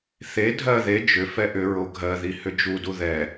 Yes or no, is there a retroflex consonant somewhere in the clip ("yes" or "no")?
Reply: no